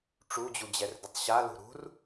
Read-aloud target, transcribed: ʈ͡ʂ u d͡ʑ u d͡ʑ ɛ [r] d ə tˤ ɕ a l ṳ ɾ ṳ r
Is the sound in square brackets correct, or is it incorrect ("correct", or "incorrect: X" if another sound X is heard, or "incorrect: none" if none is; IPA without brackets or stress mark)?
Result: correct